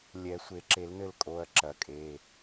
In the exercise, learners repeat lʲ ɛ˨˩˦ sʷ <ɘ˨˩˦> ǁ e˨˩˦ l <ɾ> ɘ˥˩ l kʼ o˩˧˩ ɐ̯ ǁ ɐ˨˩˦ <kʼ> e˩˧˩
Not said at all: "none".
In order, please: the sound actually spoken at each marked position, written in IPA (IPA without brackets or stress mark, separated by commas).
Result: e˨˩˦, n, kʼ